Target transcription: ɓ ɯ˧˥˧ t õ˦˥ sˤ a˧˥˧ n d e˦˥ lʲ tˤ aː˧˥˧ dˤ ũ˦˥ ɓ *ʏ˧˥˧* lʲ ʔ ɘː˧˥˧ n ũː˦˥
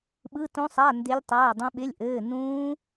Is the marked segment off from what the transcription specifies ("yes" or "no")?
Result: yes